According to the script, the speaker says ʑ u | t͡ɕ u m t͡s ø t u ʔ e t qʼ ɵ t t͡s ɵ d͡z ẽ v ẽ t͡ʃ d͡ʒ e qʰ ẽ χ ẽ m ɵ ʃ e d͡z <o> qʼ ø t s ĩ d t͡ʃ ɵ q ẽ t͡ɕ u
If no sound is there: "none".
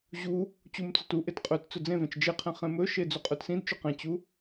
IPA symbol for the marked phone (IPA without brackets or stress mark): u